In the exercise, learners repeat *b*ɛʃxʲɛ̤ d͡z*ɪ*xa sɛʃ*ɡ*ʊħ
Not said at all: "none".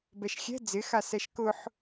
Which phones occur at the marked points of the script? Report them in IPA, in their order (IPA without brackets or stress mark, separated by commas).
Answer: b, ɪ, k